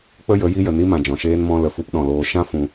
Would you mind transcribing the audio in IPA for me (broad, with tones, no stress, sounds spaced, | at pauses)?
k͡p ə˦ j ə˨˦ j i˦ j ə˨ n i˦ m ã˨ d͡ʒ ɔ̃˨ ʃ eː˦ n m ɔ̃˧ l ə˨ f u˧ p ɗ ɔ̃˨ l oː˧ ʃ ã˦ f ũ˧